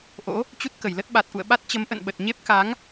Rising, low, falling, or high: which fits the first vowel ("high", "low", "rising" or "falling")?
rising